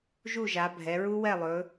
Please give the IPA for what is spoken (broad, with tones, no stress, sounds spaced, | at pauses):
ʒ u˥˨ ʒ a˩˧ bʱ ɛ˩˧ ɹ u˦˥ w ɛ˥˨ lˠ ɵː˩˧